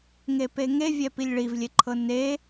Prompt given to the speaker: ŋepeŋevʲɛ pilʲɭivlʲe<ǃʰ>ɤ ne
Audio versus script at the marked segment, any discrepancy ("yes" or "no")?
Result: no